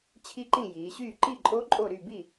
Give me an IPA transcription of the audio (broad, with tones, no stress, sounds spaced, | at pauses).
t͡ɕʰ i˦˥ ǃ ĩ˥˨ j iː˩˧ ɕ yː˥˨ ǃ i˥˨ ǃʼ o˦˥ ǃʼ o˥˨ ɾ y˥˨ b i˥˨